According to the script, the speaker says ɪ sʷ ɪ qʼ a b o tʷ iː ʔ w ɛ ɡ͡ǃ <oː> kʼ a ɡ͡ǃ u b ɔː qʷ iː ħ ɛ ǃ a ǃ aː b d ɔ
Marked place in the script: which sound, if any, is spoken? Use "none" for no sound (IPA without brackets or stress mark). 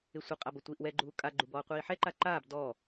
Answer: uː